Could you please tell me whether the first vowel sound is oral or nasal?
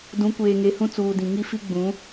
nasal